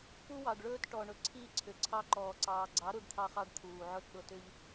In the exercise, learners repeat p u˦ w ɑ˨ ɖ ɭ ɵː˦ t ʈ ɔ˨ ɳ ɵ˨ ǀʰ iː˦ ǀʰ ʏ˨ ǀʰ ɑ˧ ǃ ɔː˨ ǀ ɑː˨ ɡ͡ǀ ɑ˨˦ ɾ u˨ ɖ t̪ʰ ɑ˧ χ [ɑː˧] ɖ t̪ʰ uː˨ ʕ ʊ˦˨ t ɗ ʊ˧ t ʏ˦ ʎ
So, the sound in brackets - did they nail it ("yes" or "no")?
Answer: no